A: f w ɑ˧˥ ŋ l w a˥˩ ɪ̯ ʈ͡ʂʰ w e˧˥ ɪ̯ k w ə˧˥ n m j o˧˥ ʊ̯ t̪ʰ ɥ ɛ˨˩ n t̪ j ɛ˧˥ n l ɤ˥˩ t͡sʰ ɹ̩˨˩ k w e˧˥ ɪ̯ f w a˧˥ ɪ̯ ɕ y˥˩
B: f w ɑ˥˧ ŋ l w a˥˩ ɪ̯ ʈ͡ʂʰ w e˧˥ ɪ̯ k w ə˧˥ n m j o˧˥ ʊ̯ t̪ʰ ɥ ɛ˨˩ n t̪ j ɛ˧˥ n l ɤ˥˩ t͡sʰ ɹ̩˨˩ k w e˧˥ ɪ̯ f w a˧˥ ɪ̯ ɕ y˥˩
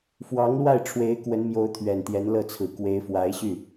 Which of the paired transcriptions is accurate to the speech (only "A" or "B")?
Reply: A